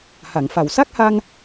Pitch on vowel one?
low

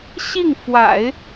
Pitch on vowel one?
falling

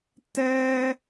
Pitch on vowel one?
high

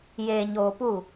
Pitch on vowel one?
low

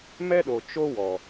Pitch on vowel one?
high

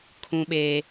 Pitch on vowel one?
low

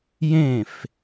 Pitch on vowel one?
falling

